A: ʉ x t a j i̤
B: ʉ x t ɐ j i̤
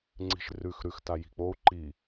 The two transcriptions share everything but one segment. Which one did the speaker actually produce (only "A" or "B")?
A